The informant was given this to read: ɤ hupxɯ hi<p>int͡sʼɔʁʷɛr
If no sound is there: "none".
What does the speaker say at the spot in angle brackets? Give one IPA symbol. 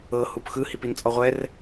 p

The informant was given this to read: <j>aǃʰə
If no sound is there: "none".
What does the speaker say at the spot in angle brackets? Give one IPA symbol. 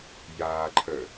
j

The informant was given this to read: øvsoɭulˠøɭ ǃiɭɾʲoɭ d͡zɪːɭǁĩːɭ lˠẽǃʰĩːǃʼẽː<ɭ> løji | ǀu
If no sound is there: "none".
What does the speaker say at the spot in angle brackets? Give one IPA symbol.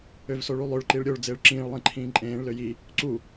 ɭ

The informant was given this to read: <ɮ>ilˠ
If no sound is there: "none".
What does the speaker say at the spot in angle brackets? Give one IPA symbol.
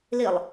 l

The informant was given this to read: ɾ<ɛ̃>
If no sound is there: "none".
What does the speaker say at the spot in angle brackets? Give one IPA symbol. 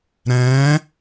ɛ̃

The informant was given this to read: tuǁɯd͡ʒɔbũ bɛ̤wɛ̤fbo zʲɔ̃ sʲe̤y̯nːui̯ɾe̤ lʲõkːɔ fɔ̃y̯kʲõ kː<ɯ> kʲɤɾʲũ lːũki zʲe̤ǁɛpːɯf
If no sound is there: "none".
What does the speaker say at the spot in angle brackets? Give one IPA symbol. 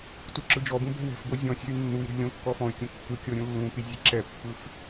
ɯ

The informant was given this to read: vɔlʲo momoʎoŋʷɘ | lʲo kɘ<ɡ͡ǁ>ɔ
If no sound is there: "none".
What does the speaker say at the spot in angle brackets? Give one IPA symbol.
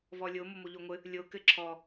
ǁʰ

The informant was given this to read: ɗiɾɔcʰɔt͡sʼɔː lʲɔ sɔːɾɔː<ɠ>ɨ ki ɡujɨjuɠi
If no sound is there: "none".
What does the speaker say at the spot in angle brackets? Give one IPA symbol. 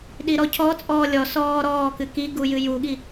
k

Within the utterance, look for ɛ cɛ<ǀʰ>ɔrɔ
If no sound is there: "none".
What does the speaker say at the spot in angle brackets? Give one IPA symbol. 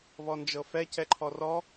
ǃʰ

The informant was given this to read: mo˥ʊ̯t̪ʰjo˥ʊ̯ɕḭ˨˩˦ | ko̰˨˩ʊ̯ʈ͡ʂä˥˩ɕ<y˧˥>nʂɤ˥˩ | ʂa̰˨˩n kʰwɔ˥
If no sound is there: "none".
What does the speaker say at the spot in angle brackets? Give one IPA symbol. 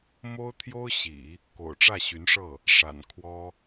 y˧˥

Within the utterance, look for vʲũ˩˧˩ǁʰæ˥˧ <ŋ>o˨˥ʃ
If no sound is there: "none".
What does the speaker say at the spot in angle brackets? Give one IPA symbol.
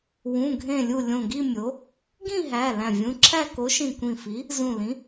k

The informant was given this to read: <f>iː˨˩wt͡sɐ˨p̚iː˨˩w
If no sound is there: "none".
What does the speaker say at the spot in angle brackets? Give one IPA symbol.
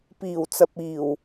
p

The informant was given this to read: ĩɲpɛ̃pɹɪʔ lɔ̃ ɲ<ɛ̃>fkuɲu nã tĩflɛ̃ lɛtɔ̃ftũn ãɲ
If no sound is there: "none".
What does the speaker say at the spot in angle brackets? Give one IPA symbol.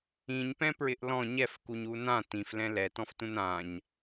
ɛ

